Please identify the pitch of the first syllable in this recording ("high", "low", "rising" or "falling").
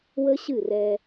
high